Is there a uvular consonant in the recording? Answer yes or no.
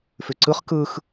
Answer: yes